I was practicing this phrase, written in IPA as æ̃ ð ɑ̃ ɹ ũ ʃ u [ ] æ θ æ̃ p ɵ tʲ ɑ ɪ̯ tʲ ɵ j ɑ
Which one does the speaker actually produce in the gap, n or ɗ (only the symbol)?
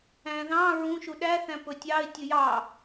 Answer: ɗ